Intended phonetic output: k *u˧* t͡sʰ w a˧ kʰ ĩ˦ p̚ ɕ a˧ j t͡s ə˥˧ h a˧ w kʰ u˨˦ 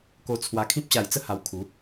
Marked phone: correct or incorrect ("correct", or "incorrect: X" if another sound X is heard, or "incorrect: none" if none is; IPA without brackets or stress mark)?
incorrect: o˧